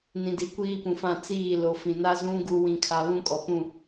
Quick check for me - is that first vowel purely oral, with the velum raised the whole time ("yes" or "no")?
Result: no